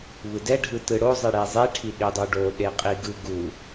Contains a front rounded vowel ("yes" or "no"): no